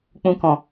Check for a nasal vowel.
present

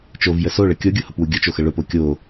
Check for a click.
absent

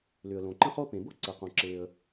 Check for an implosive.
absent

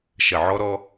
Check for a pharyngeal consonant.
present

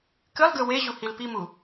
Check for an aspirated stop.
absent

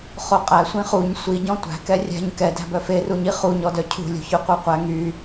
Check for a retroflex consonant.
absent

